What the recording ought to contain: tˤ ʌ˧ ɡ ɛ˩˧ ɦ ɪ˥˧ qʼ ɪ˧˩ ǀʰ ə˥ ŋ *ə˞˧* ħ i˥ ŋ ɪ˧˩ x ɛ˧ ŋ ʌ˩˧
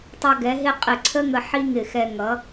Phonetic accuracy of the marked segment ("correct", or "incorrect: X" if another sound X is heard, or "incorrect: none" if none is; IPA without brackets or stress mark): incorrect: ə˧